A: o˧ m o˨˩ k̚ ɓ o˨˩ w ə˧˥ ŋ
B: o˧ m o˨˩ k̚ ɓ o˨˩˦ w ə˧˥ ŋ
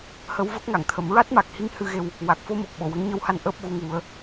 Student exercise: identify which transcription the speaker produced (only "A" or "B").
A